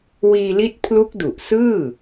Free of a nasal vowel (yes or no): yes